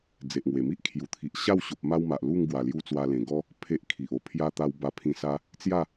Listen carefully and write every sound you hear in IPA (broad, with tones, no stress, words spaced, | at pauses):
d͡ze˨ʔŋwe˨˩mi˦ʔ kʰju˨˩t̪ʰi˨ʔ ɕa˥˧wɕo˨p̚ ma˧wma˨ʔ lu˥˧ŋɡwa˨˩lju˧ t͡swa˧lẽ˨˩ɡɔ˦ | pʰe˦ʔkʰi˨ʔ o˧pʰja˦ t̪a˧wba˧pʰĩ˧sa˦ | t͡sja˥˧